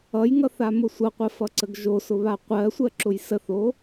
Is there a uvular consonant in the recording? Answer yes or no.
yes